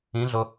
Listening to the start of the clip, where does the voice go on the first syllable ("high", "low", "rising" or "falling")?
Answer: rising